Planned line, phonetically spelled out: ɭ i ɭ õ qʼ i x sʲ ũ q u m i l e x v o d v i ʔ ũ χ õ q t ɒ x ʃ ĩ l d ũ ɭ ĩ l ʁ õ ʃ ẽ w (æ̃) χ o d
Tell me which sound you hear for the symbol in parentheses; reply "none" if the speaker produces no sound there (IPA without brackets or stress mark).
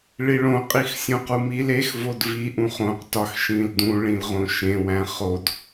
æ̃